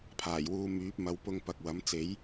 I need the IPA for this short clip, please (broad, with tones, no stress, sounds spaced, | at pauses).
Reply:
pʰ aː˨˩ j w uː˨˧ m yː˨˥ p̚ m ɐ˨˧ w p ʊ˧ ŋ p ɐ˨ k̚ w ɐ˨˥ m t͡s e˨˥ j